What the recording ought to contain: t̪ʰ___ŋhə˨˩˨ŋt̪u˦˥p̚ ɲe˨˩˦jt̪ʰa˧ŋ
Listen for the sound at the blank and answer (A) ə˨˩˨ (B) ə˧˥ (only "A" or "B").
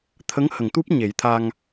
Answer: B